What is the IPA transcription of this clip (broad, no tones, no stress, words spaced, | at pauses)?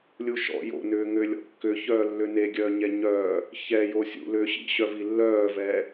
lʲuʃɔ̰ jo̰nʏː ŋʏːlʲɔ̰kːʏçœː lːʏneɡʲœː ɲɛɲœː | çɛjo sʲṵ lʏːɕḭɕœvi lːœːvɛ